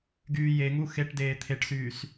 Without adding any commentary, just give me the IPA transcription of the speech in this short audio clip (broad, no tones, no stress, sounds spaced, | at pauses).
ɡ yː j e ŋ u x e ʈ d eː t̪ʰ e ʈ s yː s